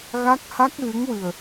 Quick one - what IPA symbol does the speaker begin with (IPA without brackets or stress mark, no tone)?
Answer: ɣ